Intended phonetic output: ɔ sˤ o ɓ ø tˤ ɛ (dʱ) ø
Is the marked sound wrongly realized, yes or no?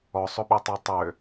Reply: yes